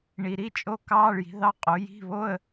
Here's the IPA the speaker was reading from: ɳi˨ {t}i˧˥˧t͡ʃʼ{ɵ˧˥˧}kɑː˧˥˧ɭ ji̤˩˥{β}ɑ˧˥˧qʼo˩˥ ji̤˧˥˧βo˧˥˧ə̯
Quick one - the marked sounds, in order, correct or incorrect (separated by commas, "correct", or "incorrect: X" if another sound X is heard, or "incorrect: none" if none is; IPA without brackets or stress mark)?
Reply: incorrect: ɾ, incorrect: o˧˥˧, incorrect: ð